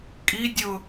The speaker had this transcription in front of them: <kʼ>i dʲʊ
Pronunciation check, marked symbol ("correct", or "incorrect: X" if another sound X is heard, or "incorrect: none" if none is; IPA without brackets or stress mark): correct